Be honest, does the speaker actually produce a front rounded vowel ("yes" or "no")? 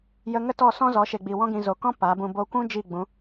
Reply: no